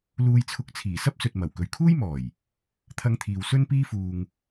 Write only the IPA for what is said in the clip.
l uː˧ j t͡sʰ ʊ˧ k̚ t͡sʰ iː˨˩ s ɐ˥ p̚ s ɵ˨ t̚ m ɐ˨˩ w k ɵ˨ ɥ kʰ uː˥ j m ɔː˨˩ j | t̪ʰ ɐ˧ ŋ t̪ʰ iː˨ w s ɵ˥ n p iː˥ f uː˧ ŋ

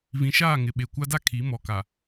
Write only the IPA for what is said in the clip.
v ĩ˨ ʃ aː˦˨ ŋ ɪ˨ ɓ e˨ kʷ a˦ d a˦ kʰ i˨˦ m ɔ˨ k a˨

